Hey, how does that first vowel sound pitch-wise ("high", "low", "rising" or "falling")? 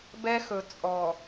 high